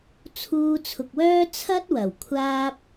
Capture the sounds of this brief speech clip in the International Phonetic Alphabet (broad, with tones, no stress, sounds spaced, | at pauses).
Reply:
t͡sʰ uː˧ t͡sʰ ʊ˨ k̚ w œː˥ t͡sʰ ɐ˥ t̚ w ɐ˨˩ w kʷʰ aː˥ p̚